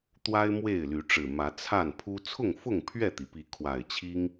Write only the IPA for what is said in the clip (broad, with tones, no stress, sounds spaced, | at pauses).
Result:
t̪ w a˦ ɪ̯ m w e˥˨ ɪ̯ l y˨˦ ʈ͡ʂ ɻ̩˨˩ m ä˨˦ t͡sʰ a˥˨ n pʰ u˦ t͡sʰ ʊ˥˨ ŋ f ʊ˥˨ ŋ pʰ ɥ ɛ˥˨ t̪ i˩ p i˨˦ kʰ w a˨˩ ɪ̯ t͡ɕʰ i˦ ŋ